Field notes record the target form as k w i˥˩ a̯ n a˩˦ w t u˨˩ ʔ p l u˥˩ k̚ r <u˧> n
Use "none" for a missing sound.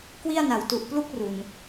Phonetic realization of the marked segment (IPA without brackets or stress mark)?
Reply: u˨˩